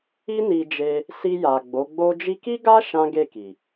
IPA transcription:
i˦ n i˧ d͡ʒ e˧ | s i˧ j a˨ ɡ͡b o˨˦ ɡ͡b o˦ d͡ʒ i˧ k i˦ ɡ a˦ ʃ ã˦ ɡ e˦˨ k i˨

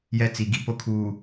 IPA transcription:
j ɛ˦ t͡s i˨ ɡ i˦˨ p o˦ kʰ uː˨

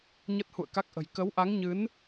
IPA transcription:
ɲ ə˦˥ t̚ h ṵ˧˨ ə̯ k a˦˥ k̚ ʔ ə̤˨˩ j k ə˨˦ w ʔ a˨˦ ŋ ɲ ɨ˨˦ n

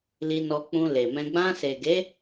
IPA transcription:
l i˧ n ɔ˧ k͡p ũ˧ l e˨ m ɛ̃˧ ɡ͡b ã˧ s e˨ ɡ e˨˦

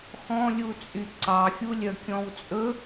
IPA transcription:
x ɔ̃ lʲ u t͡sʼ y ǀ ɑ xʲ u lʲ œ kʲ ɔ̃ w t͡sʼ ɵ

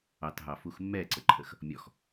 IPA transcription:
ɑ t ɦ ɑ f u x mː ɛ ǀ ə ǃʰ ə x | mʲ ɔ x

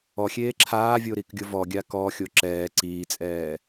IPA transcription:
ɔ xʲ eː ǁʰ aː vʲ o ɾ i k ɡʲ ʊ v ɔ ɡʲ a k ɔ xʲ o ǁ ɛː ǀ iː t͡sʼ ɛː

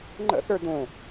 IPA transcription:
ŋ͡ǃ ə̰ θ ə˞ d õ

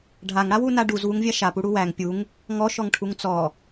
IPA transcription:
ɖʱ a ŋ ɽ a w u n a ɖ u z w u ŋ vʲ a ʃ a p u ɽ u w æ ŋ pʲ u ŋ | ŋ ɔ ʃ ɔ ŋ ʈʰ u ŋ t͡s ɔ

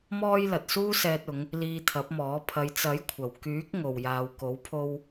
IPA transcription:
m ɔː˥ j l ɐ˨ t̚ s uː˥ s ɛː˧ t̚ ʊ˨˧ ŋ | l iː˧ t̪ʰ ɐ˨˥ p̚ m ɔː˨˥ pʰ ɐ˨˧ j t͡s ɐ˨˥ j kʷʰ ɐ˨˩ w k yː˨˥ k̚ ŋ o˨ w j aː˨ w k o˨˥ w pʰ o˧ w

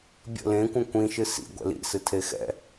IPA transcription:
bʲ ə̰ l ẽ kʷ ə̃ kʷ ĩ ʃ ɨ s ḭ ɡʷ ɛ̰ l ḭ s ɨ tʰ e x ɛ̰

